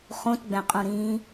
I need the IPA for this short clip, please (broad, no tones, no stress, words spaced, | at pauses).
χũtɡ͡bɛ̃qʼũɾĩː